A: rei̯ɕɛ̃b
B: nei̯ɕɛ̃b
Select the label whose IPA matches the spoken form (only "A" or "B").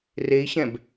A